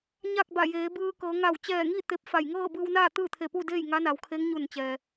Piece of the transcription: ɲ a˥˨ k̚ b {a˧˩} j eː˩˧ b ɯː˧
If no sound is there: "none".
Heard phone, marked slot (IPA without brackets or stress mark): a˧˩